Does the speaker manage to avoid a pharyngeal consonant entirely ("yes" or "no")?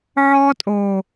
no